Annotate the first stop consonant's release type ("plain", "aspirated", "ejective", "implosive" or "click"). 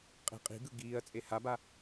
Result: ejective